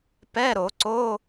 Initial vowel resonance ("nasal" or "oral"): oral